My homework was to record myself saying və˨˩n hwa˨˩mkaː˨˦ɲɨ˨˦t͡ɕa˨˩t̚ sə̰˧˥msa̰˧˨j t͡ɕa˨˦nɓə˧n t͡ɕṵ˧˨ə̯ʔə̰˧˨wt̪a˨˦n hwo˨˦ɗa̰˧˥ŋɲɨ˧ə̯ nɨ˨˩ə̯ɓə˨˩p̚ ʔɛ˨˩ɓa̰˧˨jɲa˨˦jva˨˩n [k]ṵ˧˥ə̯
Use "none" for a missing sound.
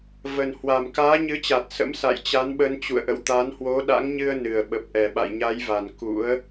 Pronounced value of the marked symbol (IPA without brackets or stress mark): k